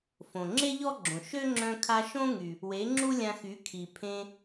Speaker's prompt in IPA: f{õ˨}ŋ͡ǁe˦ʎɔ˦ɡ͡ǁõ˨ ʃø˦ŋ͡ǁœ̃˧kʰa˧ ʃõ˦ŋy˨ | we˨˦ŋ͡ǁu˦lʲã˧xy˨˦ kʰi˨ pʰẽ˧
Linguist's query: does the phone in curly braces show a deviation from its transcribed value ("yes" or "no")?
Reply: no